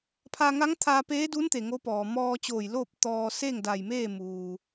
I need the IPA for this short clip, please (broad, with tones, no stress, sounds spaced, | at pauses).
pʰ a˧ ŋ a˧˥ ŋ t̪ʰ aː˧ p eː˧˥ d u˧˥ n t̪ e˩ ŋ o˧˥ p ɔː˩ m ɔː˧ t͡ɕ oː˧˩ j l o˥˨ p̚ t̪ ɔː˧ s eː˥˨ ŋ d a˧˩ j m eː˥˨ m uː˩